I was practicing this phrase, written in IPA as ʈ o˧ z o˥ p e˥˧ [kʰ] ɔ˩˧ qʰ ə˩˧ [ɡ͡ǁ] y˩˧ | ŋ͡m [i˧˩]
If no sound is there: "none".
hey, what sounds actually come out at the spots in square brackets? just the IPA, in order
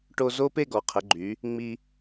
ɡ, ɡ͡ǃ, i˧

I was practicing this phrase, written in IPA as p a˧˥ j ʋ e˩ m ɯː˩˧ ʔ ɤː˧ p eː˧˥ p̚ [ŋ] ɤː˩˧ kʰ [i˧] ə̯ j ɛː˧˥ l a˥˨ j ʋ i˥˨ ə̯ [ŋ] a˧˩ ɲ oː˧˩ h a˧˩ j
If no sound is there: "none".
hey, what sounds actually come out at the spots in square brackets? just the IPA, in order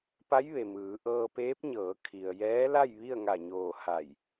ɲ, i˩, ŋ

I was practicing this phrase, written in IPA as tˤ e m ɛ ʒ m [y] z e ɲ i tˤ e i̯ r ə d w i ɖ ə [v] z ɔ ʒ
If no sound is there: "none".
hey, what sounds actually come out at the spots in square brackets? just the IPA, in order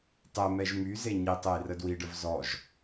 y, v

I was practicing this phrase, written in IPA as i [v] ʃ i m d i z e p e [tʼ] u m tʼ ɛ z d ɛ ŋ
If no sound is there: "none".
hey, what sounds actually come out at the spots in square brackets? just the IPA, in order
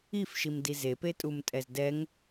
f, tʼ

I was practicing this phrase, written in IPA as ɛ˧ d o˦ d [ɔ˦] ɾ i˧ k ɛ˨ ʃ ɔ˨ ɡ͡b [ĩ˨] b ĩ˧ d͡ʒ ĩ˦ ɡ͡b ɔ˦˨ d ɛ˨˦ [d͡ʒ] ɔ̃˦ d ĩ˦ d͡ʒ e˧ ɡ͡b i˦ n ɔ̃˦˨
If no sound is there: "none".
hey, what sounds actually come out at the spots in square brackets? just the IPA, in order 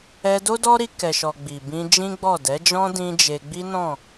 ɔ˦, i˨, d͡ʒ

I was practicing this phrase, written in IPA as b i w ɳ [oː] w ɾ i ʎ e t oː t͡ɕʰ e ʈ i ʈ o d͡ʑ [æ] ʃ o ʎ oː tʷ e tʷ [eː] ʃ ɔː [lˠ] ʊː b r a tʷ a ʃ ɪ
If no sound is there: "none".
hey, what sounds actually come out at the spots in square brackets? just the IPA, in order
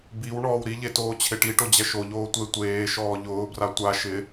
ɔː, ɛ, eː, ʎ

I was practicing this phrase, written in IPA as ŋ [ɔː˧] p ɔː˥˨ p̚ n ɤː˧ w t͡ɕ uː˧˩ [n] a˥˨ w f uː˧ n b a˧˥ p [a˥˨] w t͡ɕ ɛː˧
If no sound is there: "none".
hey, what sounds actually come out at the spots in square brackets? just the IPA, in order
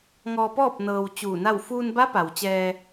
ɔː˧, n, a˩

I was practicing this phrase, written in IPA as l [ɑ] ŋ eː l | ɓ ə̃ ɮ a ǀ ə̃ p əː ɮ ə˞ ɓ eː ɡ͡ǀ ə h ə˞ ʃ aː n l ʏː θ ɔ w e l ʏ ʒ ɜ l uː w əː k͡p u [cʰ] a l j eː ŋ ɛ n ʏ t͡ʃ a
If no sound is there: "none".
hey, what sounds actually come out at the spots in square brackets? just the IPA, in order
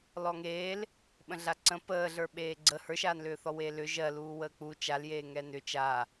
ɔ, t͡ʃ

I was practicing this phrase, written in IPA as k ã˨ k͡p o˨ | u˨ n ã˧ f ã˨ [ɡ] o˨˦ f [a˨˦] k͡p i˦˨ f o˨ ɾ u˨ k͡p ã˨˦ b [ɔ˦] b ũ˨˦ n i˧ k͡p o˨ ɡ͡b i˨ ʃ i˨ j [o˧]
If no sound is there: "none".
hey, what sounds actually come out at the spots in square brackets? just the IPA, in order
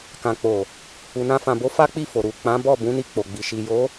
b, a˦, ɔ˦˨, o˨˦

